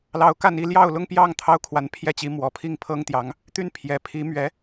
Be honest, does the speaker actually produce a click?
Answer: no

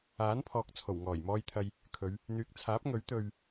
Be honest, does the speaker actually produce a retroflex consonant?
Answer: no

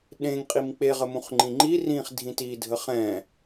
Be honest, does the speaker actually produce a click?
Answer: yes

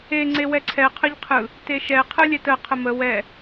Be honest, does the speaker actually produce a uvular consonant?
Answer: yes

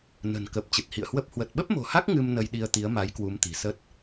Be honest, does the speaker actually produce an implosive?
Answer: yes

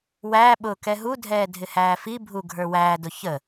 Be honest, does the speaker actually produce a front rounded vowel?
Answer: no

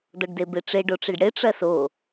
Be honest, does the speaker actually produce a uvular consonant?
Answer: no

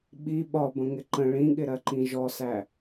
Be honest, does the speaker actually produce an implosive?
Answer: yes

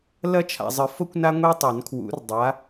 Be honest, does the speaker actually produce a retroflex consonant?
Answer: no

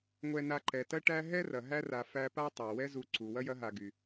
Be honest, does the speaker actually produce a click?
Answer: yes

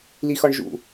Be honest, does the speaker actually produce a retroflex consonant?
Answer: yes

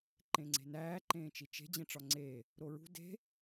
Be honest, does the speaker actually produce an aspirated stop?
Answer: no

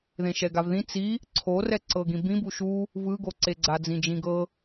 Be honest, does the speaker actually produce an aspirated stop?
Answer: yes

